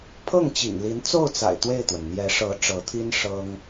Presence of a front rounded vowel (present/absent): absent